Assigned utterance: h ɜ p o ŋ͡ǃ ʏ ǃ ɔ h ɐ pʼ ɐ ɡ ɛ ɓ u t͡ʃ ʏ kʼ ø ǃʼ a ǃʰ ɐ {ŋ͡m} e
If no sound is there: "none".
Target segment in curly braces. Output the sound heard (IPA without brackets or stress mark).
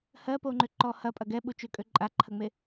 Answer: ŋ͡m